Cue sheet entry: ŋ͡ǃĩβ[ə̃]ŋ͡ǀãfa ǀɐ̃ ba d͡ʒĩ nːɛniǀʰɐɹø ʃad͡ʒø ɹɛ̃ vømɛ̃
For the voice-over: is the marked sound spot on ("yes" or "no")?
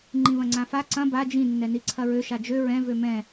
no